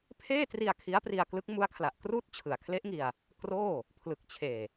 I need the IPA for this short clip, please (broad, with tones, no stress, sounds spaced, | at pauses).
pʰ eː˥˩ t r i˧ a̯ kʰ i˦˥ a̯ p r i˧ a̯ k l ɯ˦˥ k̚ m u˦˥ a̯ kʰ l a˨˩ ʔ k r uː˥˩ t̚ t͡ɕʰ ɯ˨˩ a̯ kʰ l e˦˥ ʔ ŋ i˧ a̯ | k r oː˥˩ | pʰ l ɯ˨˩ k̚ t͡ɕʰ eː˨˩